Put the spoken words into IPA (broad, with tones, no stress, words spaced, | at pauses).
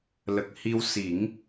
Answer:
lə˨˩k̚ hi˧w si˨˩˦ŋ